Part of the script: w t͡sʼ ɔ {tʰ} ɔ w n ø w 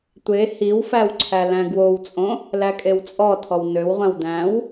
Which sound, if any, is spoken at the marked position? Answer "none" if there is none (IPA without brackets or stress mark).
tʰ